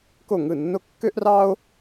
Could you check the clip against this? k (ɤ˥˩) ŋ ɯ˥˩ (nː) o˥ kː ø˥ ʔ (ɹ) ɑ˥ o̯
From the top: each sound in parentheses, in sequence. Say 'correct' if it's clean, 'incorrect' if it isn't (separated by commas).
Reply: incorrect, correct, incorrect